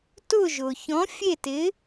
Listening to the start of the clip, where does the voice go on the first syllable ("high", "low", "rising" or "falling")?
falling